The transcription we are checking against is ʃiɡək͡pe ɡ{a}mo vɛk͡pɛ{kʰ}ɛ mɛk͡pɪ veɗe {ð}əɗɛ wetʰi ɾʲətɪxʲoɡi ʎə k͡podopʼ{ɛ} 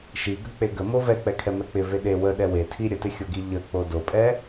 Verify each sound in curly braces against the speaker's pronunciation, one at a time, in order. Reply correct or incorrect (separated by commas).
incorrect, correct, incorrect, correct